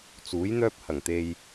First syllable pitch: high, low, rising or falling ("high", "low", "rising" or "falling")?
rising